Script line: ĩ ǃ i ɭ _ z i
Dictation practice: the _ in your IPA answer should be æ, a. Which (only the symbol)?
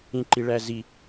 æ